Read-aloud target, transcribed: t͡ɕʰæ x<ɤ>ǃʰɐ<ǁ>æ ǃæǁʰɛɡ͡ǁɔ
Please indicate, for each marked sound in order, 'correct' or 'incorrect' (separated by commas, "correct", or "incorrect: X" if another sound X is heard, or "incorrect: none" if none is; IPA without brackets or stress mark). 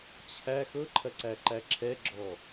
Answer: correct, incorrect: ǀ